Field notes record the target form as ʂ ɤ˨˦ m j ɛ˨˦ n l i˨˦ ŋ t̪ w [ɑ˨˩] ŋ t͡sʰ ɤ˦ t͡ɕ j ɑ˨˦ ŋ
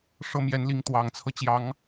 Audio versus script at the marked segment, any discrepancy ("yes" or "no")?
no